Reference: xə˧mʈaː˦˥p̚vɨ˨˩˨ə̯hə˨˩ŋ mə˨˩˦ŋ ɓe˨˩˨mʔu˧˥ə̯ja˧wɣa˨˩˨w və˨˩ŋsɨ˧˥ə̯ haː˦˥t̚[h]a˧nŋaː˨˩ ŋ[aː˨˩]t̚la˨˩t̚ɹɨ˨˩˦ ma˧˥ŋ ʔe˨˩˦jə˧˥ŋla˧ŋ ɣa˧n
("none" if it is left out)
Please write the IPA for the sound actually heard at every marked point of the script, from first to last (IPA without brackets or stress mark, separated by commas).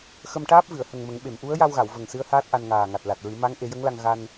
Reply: ʔ, a˨˩